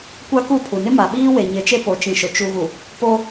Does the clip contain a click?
no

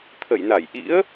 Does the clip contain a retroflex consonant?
no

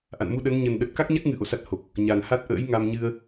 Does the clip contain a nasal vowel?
no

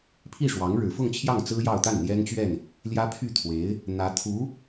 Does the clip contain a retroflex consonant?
yes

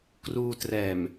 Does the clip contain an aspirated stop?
no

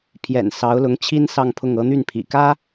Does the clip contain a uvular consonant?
no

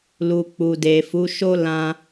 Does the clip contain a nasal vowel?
yes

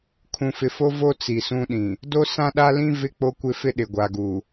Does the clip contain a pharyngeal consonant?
no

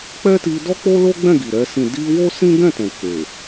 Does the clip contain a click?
no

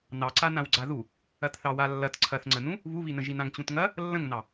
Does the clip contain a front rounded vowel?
no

